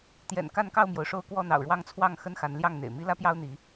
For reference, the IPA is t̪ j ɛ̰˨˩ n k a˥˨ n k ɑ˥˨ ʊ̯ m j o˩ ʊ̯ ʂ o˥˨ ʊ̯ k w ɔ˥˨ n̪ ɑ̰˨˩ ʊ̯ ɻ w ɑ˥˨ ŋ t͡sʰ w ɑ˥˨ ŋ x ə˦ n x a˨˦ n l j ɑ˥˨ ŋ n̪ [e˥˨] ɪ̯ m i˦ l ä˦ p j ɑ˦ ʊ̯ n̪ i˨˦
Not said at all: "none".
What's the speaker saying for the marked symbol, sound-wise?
ḛ˨˩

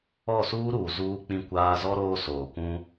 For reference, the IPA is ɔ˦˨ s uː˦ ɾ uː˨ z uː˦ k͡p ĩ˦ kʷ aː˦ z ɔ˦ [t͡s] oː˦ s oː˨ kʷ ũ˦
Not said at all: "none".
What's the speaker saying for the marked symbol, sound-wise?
ɾ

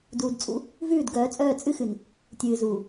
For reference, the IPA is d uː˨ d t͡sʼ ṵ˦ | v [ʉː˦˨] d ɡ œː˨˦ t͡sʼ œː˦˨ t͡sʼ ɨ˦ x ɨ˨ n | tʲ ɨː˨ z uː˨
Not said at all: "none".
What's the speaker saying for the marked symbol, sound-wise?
ʉː˦˨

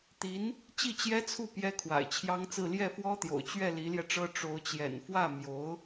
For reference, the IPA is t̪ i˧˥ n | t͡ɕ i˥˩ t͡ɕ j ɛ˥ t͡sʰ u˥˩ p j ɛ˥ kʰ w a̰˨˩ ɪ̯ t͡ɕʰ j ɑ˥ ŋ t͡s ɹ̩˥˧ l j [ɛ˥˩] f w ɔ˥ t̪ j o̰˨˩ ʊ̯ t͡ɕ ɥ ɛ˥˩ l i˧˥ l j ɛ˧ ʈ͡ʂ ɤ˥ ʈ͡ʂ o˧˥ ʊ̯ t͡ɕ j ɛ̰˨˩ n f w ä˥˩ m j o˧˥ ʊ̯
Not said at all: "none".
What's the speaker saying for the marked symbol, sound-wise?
ɛ˥˩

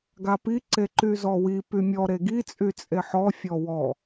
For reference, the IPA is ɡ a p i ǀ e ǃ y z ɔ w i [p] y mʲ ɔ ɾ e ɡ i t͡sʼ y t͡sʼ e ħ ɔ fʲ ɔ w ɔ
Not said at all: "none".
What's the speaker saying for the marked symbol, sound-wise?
p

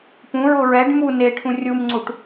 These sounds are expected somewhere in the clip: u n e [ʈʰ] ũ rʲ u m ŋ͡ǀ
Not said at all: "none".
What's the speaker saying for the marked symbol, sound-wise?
ʈʰ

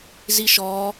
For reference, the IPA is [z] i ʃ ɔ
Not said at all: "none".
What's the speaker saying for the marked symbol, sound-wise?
z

